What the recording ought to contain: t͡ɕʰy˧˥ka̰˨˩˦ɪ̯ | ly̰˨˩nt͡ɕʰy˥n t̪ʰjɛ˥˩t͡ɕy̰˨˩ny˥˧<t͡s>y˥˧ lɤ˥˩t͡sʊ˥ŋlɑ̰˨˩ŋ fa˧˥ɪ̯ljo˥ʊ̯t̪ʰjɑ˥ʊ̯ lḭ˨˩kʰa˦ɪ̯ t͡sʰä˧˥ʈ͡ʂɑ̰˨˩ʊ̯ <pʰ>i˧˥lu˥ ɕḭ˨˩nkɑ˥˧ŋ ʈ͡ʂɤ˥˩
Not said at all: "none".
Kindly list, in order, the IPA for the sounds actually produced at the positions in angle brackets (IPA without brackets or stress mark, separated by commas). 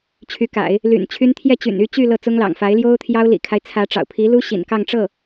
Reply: t͡ɕ, pʰ